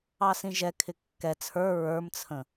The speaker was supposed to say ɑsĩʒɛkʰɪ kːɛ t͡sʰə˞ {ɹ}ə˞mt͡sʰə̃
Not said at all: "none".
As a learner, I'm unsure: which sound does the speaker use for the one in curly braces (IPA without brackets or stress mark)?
ɹ